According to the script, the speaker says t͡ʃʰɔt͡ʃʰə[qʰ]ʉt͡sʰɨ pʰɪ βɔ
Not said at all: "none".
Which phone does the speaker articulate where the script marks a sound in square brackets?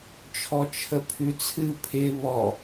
pʰ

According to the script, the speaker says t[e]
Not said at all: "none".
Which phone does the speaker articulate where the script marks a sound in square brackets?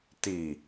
i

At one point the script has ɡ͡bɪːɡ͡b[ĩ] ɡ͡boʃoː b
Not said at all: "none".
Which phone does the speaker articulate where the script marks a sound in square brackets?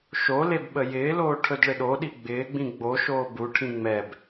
ĩ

